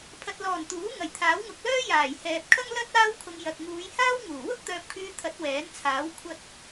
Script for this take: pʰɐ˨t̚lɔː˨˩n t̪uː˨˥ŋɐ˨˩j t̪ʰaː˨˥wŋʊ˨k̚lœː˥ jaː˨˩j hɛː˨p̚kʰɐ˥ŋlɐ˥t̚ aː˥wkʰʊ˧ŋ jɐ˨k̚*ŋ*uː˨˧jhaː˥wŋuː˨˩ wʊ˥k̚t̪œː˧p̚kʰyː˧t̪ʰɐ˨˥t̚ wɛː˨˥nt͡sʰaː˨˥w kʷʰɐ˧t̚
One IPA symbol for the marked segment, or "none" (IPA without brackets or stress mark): ŋ